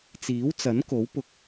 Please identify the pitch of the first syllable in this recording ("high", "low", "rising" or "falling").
rising